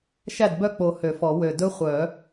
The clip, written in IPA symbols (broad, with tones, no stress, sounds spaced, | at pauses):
ʃ æ˥˩ d b œ˥˩ k͡p o˨˩ h ø˨˩˦ f ɔ˨˩˦ w ø˨˩ d ɵ˦˥ χʷ œ˨˩˦